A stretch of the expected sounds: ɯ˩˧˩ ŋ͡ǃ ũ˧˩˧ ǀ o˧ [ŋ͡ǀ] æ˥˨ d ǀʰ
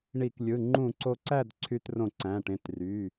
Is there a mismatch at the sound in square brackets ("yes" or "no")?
yes